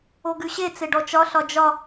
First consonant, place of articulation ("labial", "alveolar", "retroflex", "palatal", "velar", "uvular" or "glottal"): velar